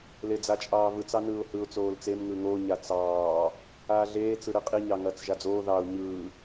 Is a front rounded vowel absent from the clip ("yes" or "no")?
yes